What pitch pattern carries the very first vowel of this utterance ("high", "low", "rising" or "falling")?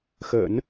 low